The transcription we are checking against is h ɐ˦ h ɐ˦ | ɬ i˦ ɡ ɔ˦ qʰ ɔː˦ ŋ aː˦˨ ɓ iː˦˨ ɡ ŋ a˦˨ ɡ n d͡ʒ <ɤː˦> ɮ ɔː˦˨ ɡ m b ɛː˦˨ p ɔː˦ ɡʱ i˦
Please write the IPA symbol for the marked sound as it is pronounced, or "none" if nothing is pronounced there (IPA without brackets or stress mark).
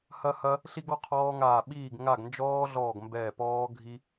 ɔː˦